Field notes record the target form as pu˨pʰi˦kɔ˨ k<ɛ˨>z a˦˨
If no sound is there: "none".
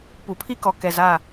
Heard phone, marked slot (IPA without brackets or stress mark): ɛ˨